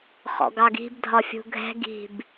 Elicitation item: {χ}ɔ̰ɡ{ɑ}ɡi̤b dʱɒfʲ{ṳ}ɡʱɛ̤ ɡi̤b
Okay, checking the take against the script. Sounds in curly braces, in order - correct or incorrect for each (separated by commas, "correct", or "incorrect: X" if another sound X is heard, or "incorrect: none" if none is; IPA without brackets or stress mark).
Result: correct, correct, correct